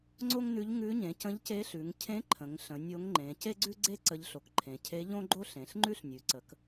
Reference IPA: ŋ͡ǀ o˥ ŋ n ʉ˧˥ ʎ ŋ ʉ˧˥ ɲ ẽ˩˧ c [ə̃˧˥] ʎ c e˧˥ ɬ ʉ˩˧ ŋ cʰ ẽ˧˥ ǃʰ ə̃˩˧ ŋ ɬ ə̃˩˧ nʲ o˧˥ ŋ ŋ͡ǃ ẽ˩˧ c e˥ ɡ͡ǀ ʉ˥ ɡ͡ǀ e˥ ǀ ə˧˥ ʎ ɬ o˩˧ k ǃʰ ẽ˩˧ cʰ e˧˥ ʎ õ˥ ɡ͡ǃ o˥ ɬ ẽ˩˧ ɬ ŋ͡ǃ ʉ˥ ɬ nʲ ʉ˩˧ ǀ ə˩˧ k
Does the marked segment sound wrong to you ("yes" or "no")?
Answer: no